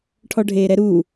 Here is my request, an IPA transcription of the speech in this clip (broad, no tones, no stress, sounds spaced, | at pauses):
ʈʰ ɔ ɖʱ eː ɾ ɛ ɾ uː